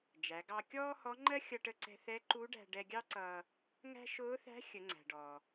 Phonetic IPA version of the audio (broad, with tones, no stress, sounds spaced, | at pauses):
d͡ʒ æ˩˧ ɡ ɑ˧ kʲ ɔː˥ h ɔ˧˥ ŋ͡ǃ ɜ˥ xʲ ʌ˧ ʈ ə˧ ǀ ɛ̤˧ θ ɛ˧˥ ǃ u˧˥ ɖ æ̤˧ ɖ ɛ˧ ɡʲ ɑ˥ ǀ ʌː˧ | ŋ æ̤˥ ʃ ʊː˧˥ θ æ̤˧˥ xʲ ə˩˧ ŋ͡ǀ æ̤˩ ɖ ɔː˩